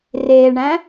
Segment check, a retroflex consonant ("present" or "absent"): present